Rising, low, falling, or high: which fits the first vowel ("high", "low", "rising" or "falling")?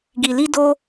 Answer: low